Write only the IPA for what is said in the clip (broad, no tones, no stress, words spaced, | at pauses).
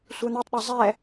sʷɛn̪ɯtˤɗe zˤɛ